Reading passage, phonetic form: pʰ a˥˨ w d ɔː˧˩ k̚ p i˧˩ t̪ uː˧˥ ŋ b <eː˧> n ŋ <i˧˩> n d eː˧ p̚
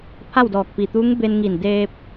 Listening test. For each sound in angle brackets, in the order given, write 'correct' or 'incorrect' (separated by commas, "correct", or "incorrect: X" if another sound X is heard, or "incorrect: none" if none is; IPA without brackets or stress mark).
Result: incorrect: e˧, correct